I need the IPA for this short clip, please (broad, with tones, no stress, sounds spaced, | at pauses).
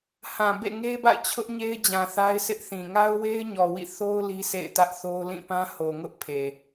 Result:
h ã˨ b ḛ˦˨ ŋ e˦ b a̰˦˨ ɪ̯ t͡ɕʰ ʊ˦ ʔ ɲ e˦ ɪ̯ d͡ʑ ã˨ θ a˦ ɪ̯ sʰ ɪ˦ ʔ θ ĩ˨ ŋ a˦ ʊ̯ w e˦ ɪ̯ ɲ ɔ˨ w ḭ˦˨ θ o˦ ʊ̯ l i˦ s ḛ˦˨ ɪ̯ t ä˦ ʔ θ o˦ ʊ̯ l ĩ˦˨ p ã˦ h o˨ ŋ ʊ˦ ʔ pʰ e˨